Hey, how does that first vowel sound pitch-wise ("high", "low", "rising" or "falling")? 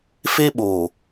high